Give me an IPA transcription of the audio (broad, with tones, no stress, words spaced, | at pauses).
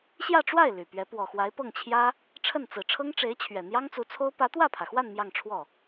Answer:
ɕjä˥˧ʈ͡ʂwa˥˩ɪ̯ ly˨˩pɥɛ˧˥ pwɔ˨˩xwa˧˥ɪ̯pɤ˥˩ŋt͡ɕʰjä˥ | ʈ͡ʂʰə˥˩nt͡sɹ̩˨˩ ʈ͡ʂʰɤ˥ŋʈ͡ʂe˧˥ɪ̯t͡ɕʰɥɛ˨˩n̪jɑ˥ŋ t͡su˧˥t͡sʰo˥ʊ̯ pä˧˥t̪wä˥˩pʰä˩xwa˥˧n mjɑ˥˧ŋʈ͡ʂʰwɔ˥˩